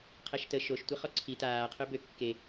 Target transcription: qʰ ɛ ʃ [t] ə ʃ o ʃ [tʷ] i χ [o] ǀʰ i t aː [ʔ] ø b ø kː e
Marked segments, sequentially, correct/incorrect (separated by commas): correct, correct, incorrect, incorrect